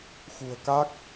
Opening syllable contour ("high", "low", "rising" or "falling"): low